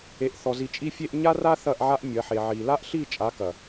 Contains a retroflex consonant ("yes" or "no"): no